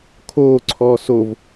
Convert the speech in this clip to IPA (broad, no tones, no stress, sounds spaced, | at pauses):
kʰ oː ǀʰ ɔː s o v